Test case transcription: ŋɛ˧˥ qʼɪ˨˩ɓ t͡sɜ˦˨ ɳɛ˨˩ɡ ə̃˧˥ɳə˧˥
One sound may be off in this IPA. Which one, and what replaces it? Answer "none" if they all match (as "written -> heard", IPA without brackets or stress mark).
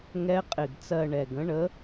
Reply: ɓ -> ɡ